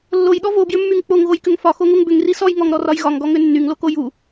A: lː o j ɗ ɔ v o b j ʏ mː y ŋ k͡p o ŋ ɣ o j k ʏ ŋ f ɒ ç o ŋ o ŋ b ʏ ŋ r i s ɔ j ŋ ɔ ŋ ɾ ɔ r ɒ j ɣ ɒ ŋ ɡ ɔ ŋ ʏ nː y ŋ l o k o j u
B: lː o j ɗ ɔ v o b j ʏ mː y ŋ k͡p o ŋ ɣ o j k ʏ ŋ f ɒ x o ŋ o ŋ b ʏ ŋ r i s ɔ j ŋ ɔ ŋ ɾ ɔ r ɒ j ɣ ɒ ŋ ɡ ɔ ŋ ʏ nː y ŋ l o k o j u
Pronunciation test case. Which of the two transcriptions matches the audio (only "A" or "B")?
B